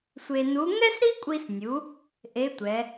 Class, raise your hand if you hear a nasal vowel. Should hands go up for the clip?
no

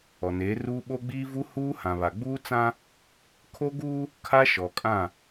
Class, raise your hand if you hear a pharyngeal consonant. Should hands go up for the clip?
no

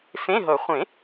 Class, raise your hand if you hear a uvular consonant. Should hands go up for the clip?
yes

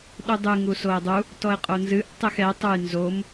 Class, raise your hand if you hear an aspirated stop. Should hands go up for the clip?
no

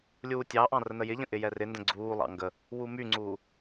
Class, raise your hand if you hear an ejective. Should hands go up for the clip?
no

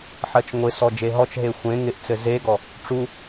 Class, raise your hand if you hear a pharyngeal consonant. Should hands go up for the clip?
yes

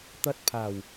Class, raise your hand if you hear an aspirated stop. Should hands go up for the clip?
yes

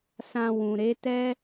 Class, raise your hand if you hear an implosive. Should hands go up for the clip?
no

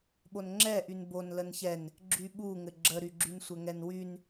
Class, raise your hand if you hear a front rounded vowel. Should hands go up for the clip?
yes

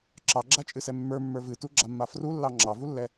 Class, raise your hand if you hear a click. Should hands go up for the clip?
yes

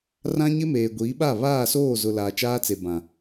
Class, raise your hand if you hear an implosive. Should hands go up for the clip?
yes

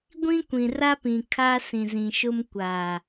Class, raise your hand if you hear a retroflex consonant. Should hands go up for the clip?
no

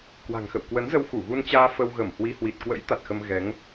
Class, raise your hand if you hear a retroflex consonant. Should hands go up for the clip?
no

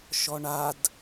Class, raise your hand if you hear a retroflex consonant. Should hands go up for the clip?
yes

